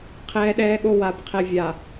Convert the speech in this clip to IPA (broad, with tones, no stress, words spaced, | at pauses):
qʰɛː˦ɗɛː˦ɠo˦ wa˨bqʰɛ˨vʲa˨